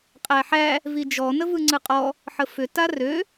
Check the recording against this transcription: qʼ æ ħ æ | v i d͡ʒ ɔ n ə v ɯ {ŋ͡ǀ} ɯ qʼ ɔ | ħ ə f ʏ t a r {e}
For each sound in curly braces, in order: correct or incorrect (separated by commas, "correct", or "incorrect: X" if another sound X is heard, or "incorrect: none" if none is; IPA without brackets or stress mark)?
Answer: correct, incorrect: ø